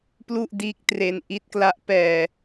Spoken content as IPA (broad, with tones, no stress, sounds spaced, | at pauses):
p l u˥˩ ʔ d iː˦˥ k̚ t r e˧ n ʔ i˦˥ t̚ k l a˦˥ ʔ p ɛː˧